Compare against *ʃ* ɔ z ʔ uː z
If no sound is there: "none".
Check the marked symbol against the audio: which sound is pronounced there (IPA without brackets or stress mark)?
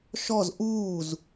ʃ